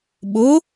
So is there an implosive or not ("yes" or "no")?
yes